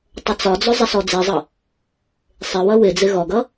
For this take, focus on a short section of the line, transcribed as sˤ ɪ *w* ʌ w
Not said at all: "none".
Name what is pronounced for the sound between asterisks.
w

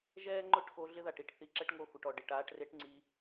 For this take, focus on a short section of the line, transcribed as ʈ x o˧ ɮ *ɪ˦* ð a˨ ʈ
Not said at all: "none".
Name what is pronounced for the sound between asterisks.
ɪ˦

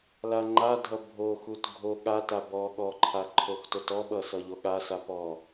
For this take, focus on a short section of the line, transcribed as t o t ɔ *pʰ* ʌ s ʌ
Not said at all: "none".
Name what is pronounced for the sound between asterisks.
ɓ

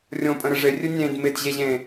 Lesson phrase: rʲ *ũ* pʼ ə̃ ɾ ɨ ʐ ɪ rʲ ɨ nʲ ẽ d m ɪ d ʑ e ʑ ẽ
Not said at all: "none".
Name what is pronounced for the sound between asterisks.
õ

